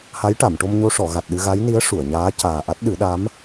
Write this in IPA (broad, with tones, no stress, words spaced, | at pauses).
ha˧˥jʈa˨˩˨mʈo˧mɲo˧ ʂɔ˨˩˨ ɣa˨˩t̚ɗɨ˧ɣa˧˥jni˧˥ə̯ ʂu˨˩˨ə̯ɲaː˧˥ caː˨˩ʔa˦˥t̚ ɗɨ˨˩˦ɗa˧˥m